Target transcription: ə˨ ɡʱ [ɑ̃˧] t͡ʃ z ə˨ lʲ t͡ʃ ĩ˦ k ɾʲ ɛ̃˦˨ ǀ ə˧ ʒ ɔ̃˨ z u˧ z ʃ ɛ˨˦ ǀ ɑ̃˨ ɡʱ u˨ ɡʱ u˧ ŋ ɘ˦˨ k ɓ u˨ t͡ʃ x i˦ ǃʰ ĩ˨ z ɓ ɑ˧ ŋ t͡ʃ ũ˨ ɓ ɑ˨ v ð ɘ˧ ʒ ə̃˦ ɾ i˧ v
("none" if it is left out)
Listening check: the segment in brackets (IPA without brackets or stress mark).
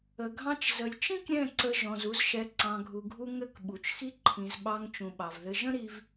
ɑ̃˧